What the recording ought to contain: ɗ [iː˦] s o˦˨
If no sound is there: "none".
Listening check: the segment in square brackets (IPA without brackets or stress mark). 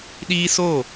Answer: iː˦